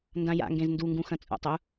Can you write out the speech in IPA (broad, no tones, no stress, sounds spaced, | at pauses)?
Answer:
n d ã j a̰ ŋ ɡ ẽ z n d u ŋ ɡ ũ x ɐ̃ t͡sʼ ṵ tˤ ʏ u̯